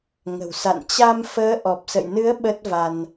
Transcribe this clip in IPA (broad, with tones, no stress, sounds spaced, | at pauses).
ŋ ə̤˨˩ w s a̰˧˨ n t͡ɕ a˧ m f əː˨˦ ʔ ɔ˨˩ p̚ s ə̰˧˨ j n ɨ˨˦ ə̯ ɓ ə˦˥ t̚ v a˧ n